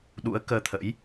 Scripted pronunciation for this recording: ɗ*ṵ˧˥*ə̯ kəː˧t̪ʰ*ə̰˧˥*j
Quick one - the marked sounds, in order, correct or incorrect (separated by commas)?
correct, correct